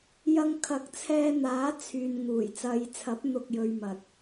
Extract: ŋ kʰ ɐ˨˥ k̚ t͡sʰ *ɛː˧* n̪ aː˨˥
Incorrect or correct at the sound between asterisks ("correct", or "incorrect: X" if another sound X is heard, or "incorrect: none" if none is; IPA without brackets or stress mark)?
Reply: correct